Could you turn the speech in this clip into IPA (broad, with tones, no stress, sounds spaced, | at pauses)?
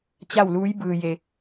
t͡ɕ a˥˨ w l uː˧˥ j b ɯː˧ j e˧